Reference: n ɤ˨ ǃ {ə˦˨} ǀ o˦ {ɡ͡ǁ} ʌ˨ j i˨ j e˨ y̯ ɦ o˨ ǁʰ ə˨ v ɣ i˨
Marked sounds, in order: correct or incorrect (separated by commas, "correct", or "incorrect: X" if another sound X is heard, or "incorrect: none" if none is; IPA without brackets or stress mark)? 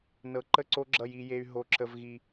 correct, correct